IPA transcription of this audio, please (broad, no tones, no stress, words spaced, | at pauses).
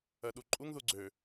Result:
ɜɗuǃʼuŋ ðuɡ͡ǀø